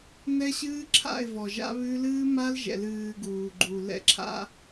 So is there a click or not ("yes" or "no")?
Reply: yes